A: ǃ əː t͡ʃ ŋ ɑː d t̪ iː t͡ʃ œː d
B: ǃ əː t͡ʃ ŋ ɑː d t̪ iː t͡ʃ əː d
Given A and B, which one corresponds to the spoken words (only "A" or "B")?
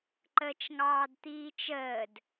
B